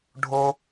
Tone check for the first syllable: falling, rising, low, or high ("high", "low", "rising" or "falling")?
high